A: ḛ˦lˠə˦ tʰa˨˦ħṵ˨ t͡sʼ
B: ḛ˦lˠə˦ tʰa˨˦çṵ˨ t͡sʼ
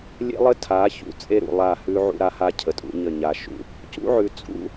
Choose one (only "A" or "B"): B